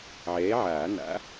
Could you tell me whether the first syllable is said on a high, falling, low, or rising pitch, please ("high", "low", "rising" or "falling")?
rising